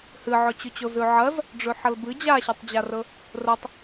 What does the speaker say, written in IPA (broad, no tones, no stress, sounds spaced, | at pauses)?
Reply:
h ɨ ʕ ɵ t͡ɕ ʉ t͡ɕ o z ʉ ʕ ɐ z | ɖ͡ʐ ʉ ħ ɐ l b ɨ d͡ʑ a ɕ ɐ tˤ d͡ʑ a r ɵ | r ɵ tˤ